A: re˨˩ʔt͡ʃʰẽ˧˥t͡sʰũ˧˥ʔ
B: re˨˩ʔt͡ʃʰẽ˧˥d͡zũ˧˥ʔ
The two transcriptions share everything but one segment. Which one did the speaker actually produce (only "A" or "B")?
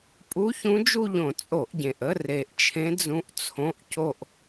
B